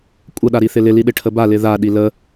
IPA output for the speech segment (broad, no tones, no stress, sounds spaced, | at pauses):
kʷʼ ə ɗ a ɾ i θ ɪ l ɪ l i ɗ ɪ ʈʰ ə b a l ɪ ð a ɗ i l ə